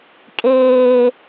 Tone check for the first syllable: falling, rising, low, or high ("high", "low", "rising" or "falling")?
low